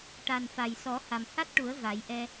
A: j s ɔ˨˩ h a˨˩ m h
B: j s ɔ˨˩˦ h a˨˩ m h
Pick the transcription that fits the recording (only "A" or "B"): B